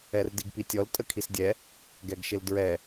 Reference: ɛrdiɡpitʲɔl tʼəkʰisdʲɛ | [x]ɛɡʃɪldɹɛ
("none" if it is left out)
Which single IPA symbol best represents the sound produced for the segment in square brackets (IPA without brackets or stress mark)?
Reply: ɡ